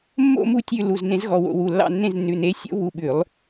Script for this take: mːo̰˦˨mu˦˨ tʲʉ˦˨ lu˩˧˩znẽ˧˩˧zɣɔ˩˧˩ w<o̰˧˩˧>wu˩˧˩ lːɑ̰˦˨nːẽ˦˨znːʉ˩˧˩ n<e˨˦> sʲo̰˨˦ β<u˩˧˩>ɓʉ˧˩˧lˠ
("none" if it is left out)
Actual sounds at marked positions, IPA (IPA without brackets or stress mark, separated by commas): o̰˧˩˧, e˨˦, u˩˧˩